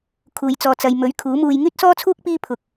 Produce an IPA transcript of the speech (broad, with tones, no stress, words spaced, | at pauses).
kʰuː˧jt͡sɔː˧t͡sɐ˧j mɵ˨˥ɥ kʰuː˨˥muː˧j ŋyː˥t̚sɔː˥t͡sʰuː˥k̚ piː˥pʰʊ˨k̚